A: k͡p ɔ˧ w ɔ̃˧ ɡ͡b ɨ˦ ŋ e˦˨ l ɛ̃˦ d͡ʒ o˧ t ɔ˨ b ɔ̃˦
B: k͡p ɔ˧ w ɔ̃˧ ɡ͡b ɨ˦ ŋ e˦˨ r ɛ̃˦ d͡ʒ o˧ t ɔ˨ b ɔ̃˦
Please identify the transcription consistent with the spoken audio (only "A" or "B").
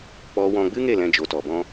A